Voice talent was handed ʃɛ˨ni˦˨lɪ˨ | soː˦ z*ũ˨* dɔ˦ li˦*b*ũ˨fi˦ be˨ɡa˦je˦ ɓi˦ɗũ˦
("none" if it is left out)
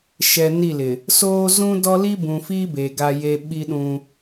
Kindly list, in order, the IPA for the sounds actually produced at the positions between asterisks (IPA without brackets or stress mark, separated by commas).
ũ˦, b